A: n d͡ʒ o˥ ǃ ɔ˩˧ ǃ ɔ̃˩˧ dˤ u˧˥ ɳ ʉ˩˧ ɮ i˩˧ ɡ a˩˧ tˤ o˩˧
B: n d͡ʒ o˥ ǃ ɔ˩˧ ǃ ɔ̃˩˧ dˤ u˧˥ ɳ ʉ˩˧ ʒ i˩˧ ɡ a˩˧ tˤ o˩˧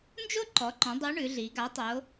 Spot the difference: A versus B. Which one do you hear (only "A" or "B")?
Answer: A